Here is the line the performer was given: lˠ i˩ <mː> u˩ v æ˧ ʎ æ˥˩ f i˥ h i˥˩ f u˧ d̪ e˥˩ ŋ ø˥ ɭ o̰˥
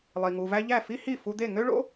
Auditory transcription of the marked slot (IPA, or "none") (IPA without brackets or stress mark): ŋ